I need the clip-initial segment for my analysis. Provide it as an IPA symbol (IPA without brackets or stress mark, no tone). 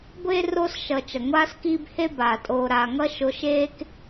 ɡʷ